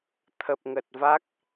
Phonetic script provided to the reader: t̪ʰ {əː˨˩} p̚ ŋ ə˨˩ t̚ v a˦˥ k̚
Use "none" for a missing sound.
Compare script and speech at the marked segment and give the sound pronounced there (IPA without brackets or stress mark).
ə˨˩